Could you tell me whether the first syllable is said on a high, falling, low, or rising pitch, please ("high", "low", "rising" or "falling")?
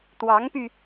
rising